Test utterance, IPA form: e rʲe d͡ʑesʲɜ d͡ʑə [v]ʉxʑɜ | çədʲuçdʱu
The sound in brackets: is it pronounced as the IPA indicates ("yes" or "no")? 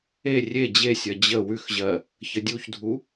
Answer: no